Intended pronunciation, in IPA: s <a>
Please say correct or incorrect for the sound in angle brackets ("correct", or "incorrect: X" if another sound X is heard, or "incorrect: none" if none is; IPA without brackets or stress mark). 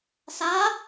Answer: correct